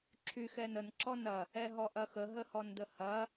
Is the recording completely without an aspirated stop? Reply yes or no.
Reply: no